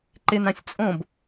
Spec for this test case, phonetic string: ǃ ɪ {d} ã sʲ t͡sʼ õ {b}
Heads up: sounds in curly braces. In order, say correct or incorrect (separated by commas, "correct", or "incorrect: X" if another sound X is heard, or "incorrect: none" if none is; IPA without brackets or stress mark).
incorrect: n, correct